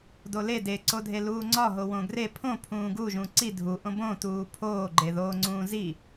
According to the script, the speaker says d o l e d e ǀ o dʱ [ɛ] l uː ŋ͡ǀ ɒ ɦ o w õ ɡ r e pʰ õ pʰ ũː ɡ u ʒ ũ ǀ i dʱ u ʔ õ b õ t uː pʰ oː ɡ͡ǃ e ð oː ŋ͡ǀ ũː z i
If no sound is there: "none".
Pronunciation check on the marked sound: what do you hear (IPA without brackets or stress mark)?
e